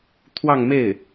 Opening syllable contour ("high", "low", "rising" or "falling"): falling